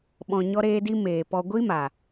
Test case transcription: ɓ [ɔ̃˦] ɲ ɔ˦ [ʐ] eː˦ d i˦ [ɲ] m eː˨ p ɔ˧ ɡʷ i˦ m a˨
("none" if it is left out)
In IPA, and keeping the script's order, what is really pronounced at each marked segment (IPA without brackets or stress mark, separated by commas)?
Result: ɔ̃˧, ɾ, none